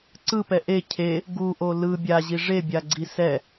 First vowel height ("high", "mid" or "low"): high